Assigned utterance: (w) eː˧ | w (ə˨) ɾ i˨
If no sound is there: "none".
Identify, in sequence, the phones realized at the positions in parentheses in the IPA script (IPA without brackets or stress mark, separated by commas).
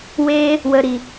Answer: w, ə˨